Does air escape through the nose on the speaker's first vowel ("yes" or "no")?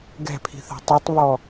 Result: no